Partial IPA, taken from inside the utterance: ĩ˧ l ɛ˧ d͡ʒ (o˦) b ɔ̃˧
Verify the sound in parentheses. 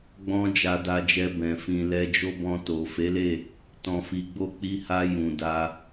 correct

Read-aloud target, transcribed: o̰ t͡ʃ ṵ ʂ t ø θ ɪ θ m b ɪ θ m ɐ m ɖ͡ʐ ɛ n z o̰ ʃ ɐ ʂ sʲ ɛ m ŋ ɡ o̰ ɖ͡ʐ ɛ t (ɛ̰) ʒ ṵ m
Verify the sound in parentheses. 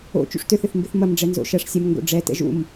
correct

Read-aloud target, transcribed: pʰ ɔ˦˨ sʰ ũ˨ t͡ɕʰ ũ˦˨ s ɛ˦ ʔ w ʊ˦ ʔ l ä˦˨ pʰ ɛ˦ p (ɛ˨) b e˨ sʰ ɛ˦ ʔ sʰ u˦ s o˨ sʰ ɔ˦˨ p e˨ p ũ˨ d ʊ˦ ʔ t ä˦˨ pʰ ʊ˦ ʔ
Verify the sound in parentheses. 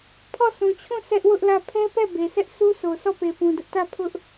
incorrect: ɛ˦˨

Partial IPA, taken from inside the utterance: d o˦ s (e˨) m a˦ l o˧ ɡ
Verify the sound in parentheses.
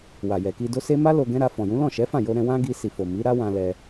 incorrect: e˦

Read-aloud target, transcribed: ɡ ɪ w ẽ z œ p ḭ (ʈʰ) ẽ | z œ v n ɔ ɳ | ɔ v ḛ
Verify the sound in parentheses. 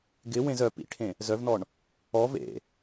correct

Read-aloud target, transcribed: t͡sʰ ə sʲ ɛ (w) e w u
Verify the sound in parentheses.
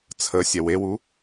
correct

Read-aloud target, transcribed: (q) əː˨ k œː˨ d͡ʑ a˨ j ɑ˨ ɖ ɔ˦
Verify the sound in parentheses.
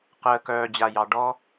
correct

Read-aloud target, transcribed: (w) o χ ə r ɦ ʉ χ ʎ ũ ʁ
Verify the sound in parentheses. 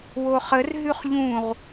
correct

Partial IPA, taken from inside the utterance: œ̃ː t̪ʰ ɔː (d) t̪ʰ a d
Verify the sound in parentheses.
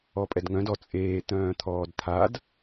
correct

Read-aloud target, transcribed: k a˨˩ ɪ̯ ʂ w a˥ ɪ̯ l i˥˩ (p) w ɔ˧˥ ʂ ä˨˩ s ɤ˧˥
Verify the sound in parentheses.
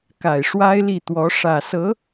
incorrect: t̪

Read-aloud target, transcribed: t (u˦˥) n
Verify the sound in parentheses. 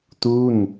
incorrect: u˥˩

